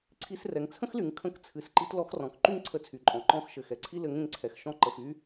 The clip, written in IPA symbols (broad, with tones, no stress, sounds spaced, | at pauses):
ǀʰ i˧ s r ɛ˩ ŋ t͡sʰ ə̃˥ x l y˩˧ ŋ kʰ ə̃˧˥ k t͡sʰ ɨ˩˧ s ǃ i˧ t l ɔ˧ x r ɔ̃˩ k ǃ y˥ ŋ ǀʰ ə˧ t͡sʰ y˩ ǃʼ ɔ̃˩˧ ǃ ɔ̃˧˥ x ʃ ɘ˩ x ɛ˩ ǀʰ i˥ l ɘ˧˥ ŋ ẽ˧ ŋ ǀʰ ɛ˩ x ʃ ɔ̃˧˥ ǃ ə˩ f y˧